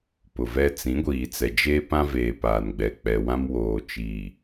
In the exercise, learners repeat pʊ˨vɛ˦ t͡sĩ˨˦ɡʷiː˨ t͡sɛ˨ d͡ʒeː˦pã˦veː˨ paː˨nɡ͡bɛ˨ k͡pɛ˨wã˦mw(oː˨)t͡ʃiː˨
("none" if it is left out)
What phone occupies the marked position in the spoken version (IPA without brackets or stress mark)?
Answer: oː˨